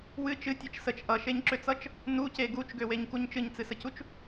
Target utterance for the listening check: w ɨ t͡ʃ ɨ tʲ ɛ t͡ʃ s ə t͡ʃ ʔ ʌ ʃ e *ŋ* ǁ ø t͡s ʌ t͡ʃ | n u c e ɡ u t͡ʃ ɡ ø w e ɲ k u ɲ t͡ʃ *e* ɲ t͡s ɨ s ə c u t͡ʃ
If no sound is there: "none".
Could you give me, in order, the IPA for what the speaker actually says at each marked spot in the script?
ɲ, ɨ

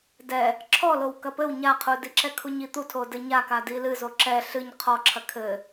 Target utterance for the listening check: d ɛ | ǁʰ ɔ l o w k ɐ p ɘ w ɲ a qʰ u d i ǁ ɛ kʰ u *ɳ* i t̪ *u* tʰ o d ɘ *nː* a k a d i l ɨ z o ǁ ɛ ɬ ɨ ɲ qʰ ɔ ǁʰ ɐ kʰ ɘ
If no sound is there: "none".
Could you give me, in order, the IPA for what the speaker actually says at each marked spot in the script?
ɲ, u, ɲ

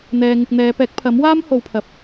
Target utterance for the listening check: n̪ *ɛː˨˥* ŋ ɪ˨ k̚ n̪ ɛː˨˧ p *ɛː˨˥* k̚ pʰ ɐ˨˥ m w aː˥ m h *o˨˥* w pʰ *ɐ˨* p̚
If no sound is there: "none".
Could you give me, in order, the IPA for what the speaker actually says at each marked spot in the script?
ɛː˨, ɛː˨˥, o˨˧, ɐ˨

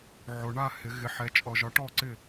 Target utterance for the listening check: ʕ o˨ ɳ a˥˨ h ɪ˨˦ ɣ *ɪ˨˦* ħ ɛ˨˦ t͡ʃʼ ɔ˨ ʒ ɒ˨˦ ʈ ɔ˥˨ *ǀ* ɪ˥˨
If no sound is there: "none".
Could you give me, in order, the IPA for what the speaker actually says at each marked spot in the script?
ɪ˨˦, ǀ

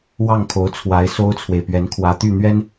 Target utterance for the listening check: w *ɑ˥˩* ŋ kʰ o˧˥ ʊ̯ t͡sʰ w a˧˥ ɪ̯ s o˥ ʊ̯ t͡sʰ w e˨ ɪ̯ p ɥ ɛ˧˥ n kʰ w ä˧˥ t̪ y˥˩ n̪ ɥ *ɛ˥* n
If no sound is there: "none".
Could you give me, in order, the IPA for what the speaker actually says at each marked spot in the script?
ɑ˥˩, ɛ˥

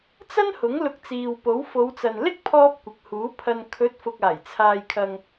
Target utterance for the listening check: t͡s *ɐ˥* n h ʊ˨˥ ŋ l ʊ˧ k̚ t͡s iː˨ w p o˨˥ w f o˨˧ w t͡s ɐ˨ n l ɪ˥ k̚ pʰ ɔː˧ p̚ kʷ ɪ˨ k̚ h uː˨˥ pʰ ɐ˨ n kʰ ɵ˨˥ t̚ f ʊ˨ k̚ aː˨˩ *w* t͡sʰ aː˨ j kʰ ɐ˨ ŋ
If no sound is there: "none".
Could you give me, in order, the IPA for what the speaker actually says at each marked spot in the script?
ɐ˥, j

